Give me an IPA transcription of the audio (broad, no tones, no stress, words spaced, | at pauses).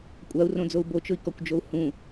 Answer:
kʷʼau̯rõd͡zou̯ bot͡ʃʊi̯kɔkʷd͡ʒou̯ hũ